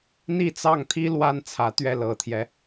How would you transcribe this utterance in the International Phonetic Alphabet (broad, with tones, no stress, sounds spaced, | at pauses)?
n̪ i˥˧ t͡s ɑ˥˩ ŋ t̪ʰ i˥ l w a˥ n t͡sʰ ä˧˥ t̪ ɥ ɛ˥˩ l ɤ˨˩ t̪ʰ j ɛ˦